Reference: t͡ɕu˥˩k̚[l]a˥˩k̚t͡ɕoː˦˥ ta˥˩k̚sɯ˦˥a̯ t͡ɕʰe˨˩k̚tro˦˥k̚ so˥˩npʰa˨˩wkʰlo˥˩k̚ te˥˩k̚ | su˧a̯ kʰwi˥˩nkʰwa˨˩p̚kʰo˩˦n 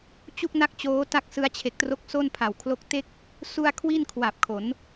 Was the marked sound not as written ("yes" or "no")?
yes